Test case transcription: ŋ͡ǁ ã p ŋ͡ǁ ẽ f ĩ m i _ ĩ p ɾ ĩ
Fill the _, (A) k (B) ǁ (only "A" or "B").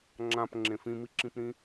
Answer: B